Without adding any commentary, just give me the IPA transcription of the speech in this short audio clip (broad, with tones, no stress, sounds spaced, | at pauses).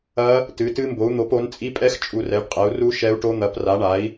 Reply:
ɐ˦˥ | t ɨ˨˥ t ɨ˦˥ m b o˨˥ u̯ n̪ o˨˥ p o˨˥ n t͡sʼ i˦˥ pʼ ɛ˦˥ x t͡ʃʼ u˦˨ r ɛ˨˥ ɖ qʼ ɛ˨˥ u̯ r u˦˥ ʃ ɛ˦˥ u̯ ʈ o˦˥ n̪ ɐ˨˥ p r a˨˥ ɳ a˨˥ i̯